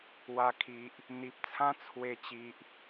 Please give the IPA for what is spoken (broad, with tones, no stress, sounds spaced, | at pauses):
w a˨˩ kʰ i˨ ʔ | n̪ i˨ p̚ t͡sʰ ã˦ t͡sʰ w e˧ t͡ɕ i˨ ʔ